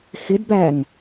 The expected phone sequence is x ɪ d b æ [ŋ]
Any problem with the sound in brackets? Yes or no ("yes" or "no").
no